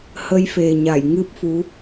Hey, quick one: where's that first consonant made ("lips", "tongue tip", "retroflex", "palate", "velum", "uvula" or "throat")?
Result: throat